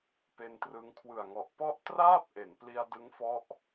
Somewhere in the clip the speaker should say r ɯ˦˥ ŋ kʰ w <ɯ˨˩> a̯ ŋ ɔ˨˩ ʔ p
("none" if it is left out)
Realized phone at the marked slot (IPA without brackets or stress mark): ɯ˨˩